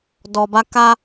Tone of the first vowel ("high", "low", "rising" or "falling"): low